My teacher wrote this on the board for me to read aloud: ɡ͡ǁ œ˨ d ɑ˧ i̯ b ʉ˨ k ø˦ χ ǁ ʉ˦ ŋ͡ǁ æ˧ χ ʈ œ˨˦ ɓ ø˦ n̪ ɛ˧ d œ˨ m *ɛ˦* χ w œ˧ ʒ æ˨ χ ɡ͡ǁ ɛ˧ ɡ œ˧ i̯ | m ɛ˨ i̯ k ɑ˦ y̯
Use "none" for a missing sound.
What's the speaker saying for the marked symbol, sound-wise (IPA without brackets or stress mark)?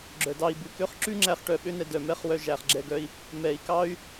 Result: ɛ˦